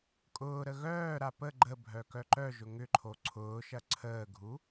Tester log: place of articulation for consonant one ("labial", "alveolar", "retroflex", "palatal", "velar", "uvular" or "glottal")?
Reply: velar